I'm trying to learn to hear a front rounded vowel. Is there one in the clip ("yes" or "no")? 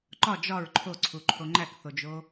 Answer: no